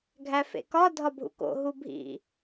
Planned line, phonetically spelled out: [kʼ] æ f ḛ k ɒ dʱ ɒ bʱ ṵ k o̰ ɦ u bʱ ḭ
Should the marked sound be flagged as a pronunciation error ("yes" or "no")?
yes